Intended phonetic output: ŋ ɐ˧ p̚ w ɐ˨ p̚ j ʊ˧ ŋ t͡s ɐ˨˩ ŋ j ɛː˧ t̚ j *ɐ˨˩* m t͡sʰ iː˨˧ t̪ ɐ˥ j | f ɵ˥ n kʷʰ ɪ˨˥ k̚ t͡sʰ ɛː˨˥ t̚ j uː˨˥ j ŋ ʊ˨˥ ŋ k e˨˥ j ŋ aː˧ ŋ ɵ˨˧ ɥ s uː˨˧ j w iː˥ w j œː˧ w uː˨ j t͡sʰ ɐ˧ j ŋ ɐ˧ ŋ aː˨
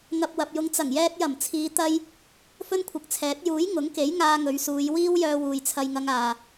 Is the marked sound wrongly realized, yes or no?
no